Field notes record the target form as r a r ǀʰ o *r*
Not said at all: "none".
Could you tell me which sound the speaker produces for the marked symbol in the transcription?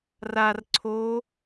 none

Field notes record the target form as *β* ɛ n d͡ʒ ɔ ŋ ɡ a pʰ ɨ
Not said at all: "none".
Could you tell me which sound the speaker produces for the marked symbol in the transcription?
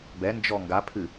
b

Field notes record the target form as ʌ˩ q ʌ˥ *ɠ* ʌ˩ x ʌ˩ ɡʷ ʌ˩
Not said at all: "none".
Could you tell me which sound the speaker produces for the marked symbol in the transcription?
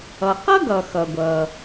ɡ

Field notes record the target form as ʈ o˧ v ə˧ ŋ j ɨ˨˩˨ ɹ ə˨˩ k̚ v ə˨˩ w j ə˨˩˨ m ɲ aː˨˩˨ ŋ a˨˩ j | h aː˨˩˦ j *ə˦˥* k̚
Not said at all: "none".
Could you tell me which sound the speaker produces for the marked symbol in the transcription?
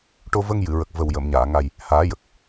ə˨˩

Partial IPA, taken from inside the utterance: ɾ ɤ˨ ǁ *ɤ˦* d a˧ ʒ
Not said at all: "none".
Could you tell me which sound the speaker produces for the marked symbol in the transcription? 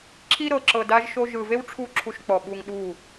ɤ˨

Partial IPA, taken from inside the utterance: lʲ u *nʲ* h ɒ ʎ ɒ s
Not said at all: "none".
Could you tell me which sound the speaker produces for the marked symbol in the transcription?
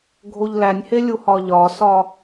none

